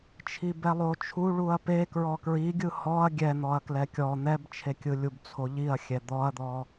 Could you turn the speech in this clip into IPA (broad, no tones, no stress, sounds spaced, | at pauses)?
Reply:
t͡ʃʰ i b ɛ lˠ o t͡ʃʰ u ɭ u ɐ̯ p e k ɹ ɔ k ɹ i ɡʲ ɯ h ɔ ɐ̯ ɡʲ ɛ n̪ ɔ ɐ̯ k l ɛ kʲ ɔ n̪ ɛ b t͡ʃʰ e kʲ ɯ lʲ u b t͡sʰ o ʎ i ɐ̯ xʲ ɛ d̪ ɔ ɐ̯ d̪ ɔ